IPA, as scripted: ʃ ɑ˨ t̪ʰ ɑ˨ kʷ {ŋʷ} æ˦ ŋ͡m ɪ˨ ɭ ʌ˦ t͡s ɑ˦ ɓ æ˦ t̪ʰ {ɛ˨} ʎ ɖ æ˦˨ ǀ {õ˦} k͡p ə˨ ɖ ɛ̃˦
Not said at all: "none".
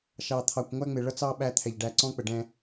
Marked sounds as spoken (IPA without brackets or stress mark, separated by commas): ŋʷ, ɛ˨, ɔ̃˦